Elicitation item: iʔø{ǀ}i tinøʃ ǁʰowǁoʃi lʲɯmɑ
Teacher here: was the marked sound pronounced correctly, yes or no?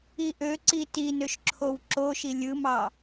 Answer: yes